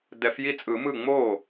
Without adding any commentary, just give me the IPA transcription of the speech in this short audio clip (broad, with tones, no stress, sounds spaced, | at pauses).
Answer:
d ɛ˨˩˦ f j i˥˩ t͡sʼ ɯ˨˩˦ m ɯ˥˩ ŋ͡m oː˥˩